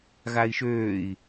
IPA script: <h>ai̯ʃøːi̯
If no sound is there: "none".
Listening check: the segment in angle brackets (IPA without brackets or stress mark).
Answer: ɣ